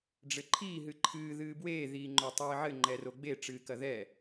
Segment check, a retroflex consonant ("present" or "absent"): present